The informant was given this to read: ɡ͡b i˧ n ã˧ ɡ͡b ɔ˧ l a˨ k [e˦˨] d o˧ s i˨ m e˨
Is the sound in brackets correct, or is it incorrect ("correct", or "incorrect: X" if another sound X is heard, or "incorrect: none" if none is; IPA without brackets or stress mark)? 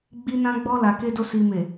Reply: incorrect: e˧